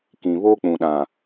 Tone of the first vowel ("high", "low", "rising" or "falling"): low